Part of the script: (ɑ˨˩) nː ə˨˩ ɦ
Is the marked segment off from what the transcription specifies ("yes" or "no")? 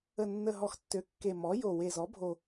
yes